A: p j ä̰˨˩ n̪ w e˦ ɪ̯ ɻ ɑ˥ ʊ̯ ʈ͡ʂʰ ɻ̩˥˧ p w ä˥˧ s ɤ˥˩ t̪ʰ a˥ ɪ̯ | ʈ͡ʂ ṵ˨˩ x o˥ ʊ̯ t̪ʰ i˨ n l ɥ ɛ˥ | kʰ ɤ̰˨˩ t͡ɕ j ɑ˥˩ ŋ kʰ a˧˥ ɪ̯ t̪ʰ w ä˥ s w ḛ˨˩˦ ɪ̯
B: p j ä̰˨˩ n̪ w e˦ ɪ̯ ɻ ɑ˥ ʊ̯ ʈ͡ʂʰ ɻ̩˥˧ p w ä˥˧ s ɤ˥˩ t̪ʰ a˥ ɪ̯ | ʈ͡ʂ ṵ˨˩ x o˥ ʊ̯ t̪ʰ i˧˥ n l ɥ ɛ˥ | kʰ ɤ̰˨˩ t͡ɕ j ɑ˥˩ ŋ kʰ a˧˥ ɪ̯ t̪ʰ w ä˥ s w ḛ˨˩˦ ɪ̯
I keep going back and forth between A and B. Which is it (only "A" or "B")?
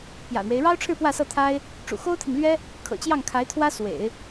A